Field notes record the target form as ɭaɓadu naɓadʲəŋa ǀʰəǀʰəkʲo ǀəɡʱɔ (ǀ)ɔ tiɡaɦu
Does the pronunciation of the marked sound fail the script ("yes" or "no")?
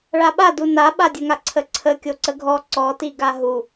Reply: no